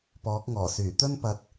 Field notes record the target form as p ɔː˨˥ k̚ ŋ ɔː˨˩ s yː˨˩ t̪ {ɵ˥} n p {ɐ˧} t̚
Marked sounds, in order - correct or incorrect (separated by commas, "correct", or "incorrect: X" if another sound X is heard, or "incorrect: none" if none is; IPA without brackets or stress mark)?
correct, correct